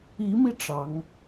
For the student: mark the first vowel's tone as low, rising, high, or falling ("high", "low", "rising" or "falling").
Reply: rising